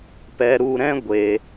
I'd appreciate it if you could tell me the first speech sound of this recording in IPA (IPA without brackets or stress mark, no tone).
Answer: p